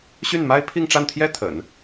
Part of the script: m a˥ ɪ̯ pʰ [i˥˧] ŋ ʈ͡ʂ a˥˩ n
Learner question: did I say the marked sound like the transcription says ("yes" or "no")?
yes